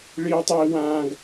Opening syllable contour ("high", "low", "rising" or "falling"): high